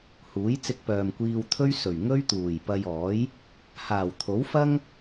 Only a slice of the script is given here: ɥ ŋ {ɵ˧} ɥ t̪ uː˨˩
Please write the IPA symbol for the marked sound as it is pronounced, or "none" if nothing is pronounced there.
ɵ˥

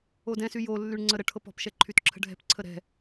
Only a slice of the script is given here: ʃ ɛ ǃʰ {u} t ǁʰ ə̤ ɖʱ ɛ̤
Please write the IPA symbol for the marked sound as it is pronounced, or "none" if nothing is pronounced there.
y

